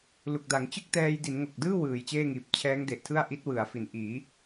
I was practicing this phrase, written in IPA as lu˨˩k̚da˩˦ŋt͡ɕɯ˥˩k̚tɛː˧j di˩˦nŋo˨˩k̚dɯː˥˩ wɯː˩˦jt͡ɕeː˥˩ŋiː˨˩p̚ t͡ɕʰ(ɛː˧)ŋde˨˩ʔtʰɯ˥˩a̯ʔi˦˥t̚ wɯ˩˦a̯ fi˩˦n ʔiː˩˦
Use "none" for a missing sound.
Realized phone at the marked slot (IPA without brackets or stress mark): ɛː˦˥